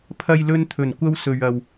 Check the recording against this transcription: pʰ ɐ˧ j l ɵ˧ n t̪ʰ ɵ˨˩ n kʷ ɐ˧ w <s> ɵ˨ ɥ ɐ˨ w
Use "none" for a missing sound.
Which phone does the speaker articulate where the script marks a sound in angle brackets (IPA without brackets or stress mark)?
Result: s